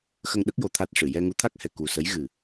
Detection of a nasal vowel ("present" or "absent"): absent